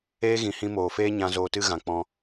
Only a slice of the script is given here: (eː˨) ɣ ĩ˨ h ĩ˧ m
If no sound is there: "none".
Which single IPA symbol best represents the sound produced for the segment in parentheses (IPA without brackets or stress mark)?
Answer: eː˦